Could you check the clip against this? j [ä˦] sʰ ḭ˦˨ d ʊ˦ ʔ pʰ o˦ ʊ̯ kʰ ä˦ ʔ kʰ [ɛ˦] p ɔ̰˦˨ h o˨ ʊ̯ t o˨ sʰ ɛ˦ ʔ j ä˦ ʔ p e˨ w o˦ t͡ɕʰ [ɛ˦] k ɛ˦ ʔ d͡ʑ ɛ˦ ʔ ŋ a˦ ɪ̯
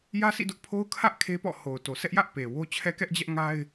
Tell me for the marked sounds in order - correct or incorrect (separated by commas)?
correct, incorrect, correct